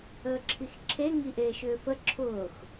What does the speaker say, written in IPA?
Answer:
əː ǁʰ i x ǁʰ e ŋ i ʔ eː ʃ ʏː f ə ǁʰ ʊː x

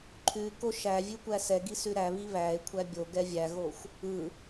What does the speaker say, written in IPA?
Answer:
ǃʰ ʉ k o ʃ æ vʲ ʉ kʷ æ s ɛ ɡ i s ʉ ɾ æ β i β æ e̯ kʷʰ æ bʲ o ɡ ɛ vʲ æ ɣ o xʷ | ɯ

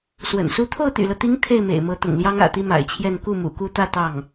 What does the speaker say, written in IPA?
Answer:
s w ə̰˨˩ n s u˥ t̪ʰ o˥˩ ʊ̯ t̪ y̰˨˩ l ɤ˦ t̪ i˧˥ ŋ t̪ʰ e˥˩ ɪ̯ m ḛ˨˩ ɪ̯ m ɤ˧˥ t̪ ʊ̰˨˩ ŋ l j ɑ˥ ŋ ä̰˨˩ t̪ i˥ m a̰˨˩ ɪ̯ t͡ɕʰ j ɛ˥˧ n k u˥˩ m ṵ˨˩ k u˥˧ t̪ ä˥˧ t̪ ɑ˥˩ ŋ

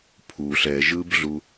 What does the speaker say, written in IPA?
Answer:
pʰ u ɬ ɛ ʒ ɯ b ɮ u

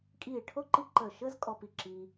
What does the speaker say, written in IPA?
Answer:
kʼ iː˧˩ ɭ ʈʰ o˥˧ ǃ i˥ ǃ əː˧˩ ʃ əː˥ z kʼ ɔ˧ p i˧˩ ǁ iː˧

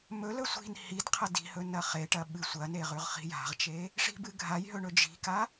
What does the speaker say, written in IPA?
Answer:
m ɵ l ɵ sʷ i̤ n h i d qʰ ɐ d i̤ h ɵ n ɐ χ e ʈ ɐ ɓ ɨ sʷ ɐ n e ʁ ʉ ʁ χ i̤ j a̤ ʁ t͡ʃ e | ʂ i̤ b ɨ ɡʱ a j ɦ ɵ ɳ ɵ d͡ʒ i̤ k a

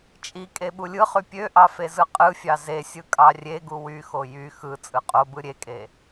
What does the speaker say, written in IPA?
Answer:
t͡ʃʼ i kʼ e ɓ u lʲ ɯ χ y pʲ ø ʔ ɑ f e z ɯ qʼ ɯ fʲ ɑ z e sʲ ɯ kʼ ɑ rʲ e ɡ u w y x o j y x ɯ t͡sʼ ɯ qʼ o b ɯ ɾʲ e kʼ e

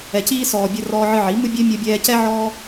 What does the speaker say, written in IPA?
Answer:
ɛ˨ c iː˧ s ɔː˨ bʲ ə˧ r ɔː˧ ʕ ɨ˧ ʕ i˨˦ m ɨ˦ bʲ ɛ˦ mʲ ɔ˧ bʲ ɛː˧ c ɛ˦ ʕ ɔː˦

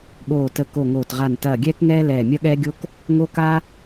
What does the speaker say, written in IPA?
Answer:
ɠ oː˧˩ t ə˧˩ k o˧˩ ŋ oː˧˩ t ʁ a˧˩ n t ɐː˧˩ ɡʲ ɛː˦ k ŋ ɛː˦ l ɛː˧˩ mʲ ɐ˦ ɠ ɛː˦ ɡʲ o˦ k | ŋ o˦ k a˦

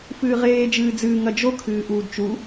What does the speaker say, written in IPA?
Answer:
f ɨː ʁ eː d͡ʒ ɨː d͡z ɨː ŋ ɐ d͡ʒ o kʰ ɨː ʔ uː d t͡ʃ u

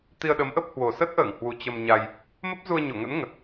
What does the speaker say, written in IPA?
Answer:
t̪ i˧ ə̯ ɗ ə˨˦ m ʔ ə˦˥ p̚ h w o˨˩ s ə˦˥ t̚ ʔ əː˧˩ ŋ h w u˨˩ t͡ɕ ə˧ m ɲ a˧ j | m ə˦˥ p̚ z u˧ ə̯ ɲ o˧˩ ŋ ə̰˧˥ n ŋ ə˨˩ t̚

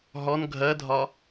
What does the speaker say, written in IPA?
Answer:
ɦ ɔ n ɡʱ ɜ dʱ ɒ

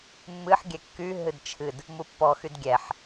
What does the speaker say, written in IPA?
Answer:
mː ɨ ħ ɡʲ ɛ kː y ɦ ɨ d t͡ʃʰ ɨ d | m u pː ɔ x y d ɡʲ ɛ ħ

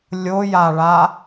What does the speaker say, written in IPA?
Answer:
lʲ o j a ɭ a

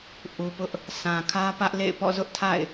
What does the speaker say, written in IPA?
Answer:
ʔ u˨ p ʊ˦ ʔ | s ã˨ kʰ ä˦ p ä˦ ʔ l ḛ˦˨ ɪ̯ p ɔ̰˦˨ z ʊ˦ ʔ tʰ a̰˦˨ ɪ̯

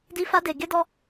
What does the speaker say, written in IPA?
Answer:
d i˨ f a˧ d e˨ ɡ e˧ d ɔ˧

